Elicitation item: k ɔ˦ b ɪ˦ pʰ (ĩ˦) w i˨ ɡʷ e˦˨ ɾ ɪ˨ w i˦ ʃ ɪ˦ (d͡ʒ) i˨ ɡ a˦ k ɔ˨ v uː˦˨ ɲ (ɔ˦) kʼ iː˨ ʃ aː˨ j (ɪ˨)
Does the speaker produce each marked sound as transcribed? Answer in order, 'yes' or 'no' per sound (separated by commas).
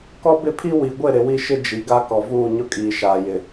no, yes, no, yes